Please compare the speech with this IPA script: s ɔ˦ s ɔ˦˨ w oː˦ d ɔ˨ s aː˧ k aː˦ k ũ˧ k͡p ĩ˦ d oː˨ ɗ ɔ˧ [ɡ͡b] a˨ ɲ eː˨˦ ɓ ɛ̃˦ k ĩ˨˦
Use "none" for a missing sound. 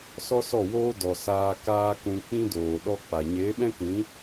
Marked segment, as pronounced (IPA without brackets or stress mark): k͡p